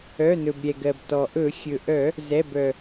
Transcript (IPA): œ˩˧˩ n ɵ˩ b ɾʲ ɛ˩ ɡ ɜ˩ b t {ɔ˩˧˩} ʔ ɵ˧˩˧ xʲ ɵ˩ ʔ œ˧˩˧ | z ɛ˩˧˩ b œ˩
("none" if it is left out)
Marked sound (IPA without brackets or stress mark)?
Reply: ɔ˩